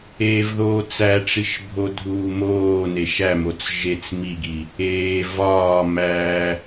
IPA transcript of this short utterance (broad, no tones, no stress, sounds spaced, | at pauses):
eː v ð oː t͡s æ ʈ͡ʂ i ʃ bʱ o dʱ uː m oː n e ʃ æ m o t͡s ʒ e t͡s m i ɡ i | eː v ɒː m æ